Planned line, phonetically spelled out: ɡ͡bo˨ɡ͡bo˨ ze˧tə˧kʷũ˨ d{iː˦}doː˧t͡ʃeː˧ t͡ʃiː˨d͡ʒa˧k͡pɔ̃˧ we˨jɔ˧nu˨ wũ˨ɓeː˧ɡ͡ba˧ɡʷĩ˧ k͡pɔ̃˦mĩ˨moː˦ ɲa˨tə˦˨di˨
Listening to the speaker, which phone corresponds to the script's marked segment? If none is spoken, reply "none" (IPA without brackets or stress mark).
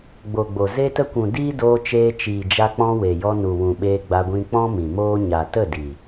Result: iː˦